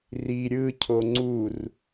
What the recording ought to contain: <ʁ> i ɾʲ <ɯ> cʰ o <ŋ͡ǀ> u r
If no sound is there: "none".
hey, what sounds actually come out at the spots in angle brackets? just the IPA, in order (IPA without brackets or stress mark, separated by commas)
r, ɯ, ŋ͡ǀ